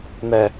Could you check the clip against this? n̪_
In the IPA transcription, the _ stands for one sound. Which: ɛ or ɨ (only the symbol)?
ɛ